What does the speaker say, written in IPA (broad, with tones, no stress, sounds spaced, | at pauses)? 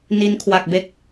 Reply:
n i˦˥ n kʰ w a˨˩ k̚ b e˦˥ k̚